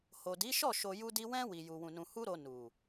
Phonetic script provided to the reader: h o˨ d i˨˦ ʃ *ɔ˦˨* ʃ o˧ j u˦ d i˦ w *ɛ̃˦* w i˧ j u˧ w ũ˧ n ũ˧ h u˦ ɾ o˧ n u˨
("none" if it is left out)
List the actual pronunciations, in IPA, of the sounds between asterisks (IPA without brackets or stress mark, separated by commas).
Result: ɔ˦˨, ɛ̃˦